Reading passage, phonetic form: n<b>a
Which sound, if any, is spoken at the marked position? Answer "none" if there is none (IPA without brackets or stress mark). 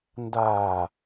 d